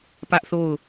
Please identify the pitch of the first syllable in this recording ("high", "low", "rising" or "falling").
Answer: high